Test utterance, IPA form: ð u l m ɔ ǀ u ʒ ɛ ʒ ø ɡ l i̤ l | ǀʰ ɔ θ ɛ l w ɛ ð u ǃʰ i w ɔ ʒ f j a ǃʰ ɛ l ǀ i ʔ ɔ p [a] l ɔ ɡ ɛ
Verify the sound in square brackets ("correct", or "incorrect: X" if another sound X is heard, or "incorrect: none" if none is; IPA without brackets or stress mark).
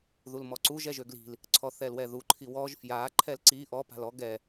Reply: incorrect: a̤